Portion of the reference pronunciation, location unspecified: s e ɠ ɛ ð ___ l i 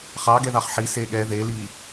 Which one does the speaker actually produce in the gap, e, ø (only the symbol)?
e